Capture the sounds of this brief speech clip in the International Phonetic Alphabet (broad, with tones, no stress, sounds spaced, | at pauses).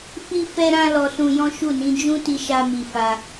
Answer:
f i˦ f ɛ˦ ɾ ã˦ l ɔ˧ s ũ˧ j ɔ̃˦ ʃ u˦˨ n ĩ˨˦ d͡ʒ ũ˦ t i˧ ʃ a˧ m i˧ f a˧